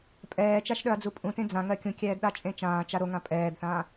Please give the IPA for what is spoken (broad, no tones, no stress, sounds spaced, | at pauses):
pʼ ɛː t͡ʃ a ʃ ɗ œ ɐ̯ d͡z u pʼ ũ t ẽ d͡z ã ŋ ɜ kʲ ũ kʲ ɛː d ɗ a t͡ʃʼ ẽ t͡ʃ ãː t͡ʃ a ɾ o ŋ ã pʼ ɛː d θ ãː